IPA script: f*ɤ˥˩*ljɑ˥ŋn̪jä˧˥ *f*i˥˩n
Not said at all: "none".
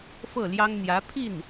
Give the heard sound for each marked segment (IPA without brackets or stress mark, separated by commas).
ɤ˥˩, pʰ